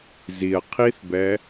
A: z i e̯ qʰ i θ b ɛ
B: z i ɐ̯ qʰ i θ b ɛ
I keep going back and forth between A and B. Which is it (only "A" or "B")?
B